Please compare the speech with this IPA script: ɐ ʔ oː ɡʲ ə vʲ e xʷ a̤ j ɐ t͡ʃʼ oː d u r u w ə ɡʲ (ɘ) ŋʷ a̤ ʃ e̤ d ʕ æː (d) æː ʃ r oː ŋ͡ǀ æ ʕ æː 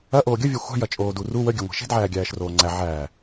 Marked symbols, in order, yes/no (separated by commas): yes, no